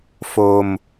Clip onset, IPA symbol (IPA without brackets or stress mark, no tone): f